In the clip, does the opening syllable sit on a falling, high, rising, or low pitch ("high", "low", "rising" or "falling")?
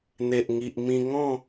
low